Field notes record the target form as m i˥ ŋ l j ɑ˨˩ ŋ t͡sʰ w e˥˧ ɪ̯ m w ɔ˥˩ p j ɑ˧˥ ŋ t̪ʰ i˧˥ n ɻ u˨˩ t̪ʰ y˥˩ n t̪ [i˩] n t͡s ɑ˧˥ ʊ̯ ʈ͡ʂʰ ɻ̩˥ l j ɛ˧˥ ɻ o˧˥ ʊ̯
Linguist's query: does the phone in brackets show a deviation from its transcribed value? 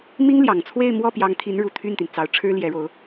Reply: no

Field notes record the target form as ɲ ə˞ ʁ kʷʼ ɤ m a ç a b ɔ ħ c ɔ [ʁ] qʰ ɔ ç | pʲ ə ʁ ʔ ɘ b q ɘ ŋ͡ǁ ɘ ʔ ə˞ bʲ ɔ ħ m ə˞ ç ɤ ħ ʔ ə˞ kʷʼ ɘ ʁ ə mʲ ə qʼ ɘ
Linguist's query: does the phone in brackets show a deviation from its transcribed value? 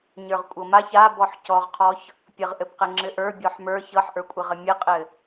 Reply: no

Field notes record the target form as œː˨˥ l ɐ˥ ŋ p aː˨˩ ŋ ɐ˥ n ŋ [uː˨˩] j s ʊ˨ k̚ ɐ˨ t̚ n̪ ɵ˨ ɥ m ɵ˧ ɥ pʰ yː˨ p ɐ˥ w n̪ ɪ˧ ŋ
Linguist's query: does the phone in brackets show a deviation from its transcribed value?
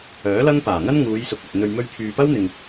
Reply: yes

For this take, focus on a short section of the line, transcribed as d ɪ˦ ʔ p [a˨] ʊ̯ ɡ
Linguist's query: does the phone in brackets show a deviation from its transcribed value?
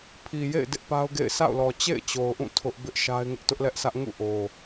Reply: yes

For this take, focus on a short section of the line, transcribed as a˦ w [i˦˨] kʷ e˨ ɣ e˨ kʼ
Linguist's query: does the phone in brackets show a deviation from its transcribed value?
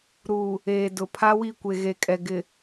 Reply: no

